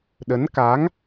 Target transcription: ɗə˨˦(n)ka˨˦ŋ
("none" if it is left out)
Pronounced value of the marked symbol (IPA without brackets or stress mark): n